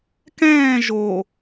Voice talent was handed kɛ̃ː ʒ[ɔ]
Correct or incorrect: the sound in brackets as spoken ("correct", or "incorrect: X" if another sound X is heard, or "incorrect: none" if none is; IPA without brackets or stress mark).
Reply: incorrect: o